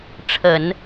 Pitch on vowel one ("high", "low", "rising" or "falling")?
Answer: low